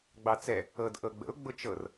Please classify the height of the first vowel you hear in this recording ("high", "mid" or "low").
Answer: low